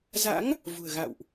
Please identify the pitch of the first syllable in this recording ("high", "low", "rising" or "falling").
rising